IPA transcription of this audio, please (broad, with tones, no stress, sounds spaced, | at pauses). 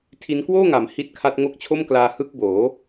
tʰ i˦˥ n k w oː˥˩ ŋ a˩˦ m h i˦˥ t̚ kʰ a˦˥ t̚ ŋ o˦˥ k̚ t͡ɕʰ o˥˩ m k l aː˧ h ɯ˦˥ k̚ b oː˩˦